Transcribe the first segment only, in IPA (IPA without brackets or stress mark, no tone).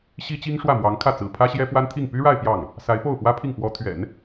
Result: ɕ